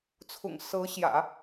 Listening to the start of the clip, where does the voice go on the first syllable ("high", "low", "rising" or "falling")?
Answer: low